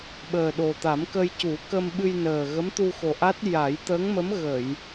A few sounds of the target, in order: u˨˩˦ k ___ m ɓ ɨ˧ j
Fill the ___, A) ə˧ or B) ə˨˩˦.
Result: A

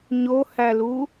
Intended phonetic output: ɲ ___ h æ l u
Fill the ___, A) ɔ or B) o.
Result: B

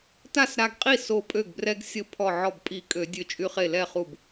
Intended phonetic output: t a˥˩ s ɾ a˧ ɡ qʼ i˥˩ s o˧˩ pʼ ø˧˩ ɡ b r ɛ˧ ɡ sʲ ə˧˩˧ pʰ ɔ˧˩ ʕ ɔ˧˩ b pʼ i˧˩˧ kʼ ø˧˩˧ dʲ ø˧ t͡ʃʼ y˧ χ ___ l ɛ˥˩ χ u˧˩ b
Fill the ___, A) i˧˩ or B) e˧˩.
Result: B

